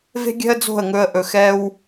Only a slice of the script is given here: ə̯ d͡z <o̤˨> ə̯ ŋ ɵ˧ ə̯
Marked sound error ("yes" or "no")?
yes